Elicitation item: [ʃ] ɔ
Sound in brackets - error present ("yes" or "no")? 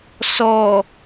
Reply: yes